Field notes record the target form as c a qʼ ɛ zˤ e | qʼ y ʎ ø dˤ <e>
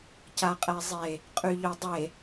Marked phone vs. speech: correct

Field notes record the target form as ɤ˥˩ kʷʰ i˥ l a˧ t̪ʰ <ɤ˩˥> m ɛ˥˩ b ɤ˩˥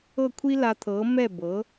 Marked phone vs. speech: correct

